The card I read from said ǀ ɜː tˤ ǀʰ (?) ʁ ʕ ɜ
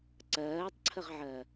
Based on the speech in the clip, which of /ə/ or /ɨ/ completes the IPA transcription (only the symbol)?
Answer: ə